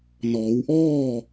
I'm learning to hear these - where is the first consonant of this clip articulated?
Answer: tongue tip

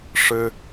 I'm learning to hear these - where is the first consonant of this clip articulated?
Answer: retroflex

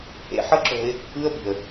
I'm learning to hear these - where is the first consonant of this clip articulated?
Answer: throat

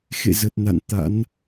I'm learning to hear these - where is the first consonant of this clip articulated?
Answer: velum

